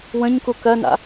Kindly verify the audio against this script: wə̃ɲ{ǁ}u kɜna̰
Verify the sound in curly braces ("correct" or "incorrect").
incorrect